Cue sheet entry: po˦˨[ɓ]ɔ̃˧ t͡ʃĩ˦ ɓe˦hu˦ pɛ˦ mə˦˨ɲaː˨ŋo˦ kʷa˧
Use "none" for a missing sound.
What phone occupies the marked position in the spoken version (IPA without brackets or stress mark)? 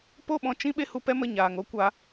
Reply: ɓ